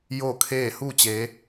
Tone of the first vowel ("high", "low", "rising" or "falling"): falling